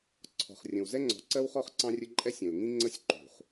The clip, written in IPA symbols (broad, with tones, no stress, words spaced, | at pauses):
ǀʰɔ̤˨χrʲə̃˨w zɛ˦ŋ͡ǀɔ̤˨ǀɜ˦wχɔ˦χ ǀɑ̃˦rʲə˦ ǃʼɛ˦sʲɛ̃˨lŋĩ˦ ŋ͡ǀə˦sʲǃṳ˨χ